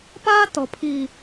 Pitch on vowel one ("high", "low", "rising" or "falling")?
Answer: high